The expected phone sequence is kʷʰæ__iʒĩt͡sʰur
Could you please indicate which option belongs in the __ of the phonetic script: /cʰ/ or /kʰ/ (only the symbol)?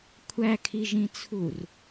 kʰ